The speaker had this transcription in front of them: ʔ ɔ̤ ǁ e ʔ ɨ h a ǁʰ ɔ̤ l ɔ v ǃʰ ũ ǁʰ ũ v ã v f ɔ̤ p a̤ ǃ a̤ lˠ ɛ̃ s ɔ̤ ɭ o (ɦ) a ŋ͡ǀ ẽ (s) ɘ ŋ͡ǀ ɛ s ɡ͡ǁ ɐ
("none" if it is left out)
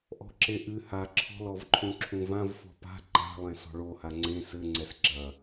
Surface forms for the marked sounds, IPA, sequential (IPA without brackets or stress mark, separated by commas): h, s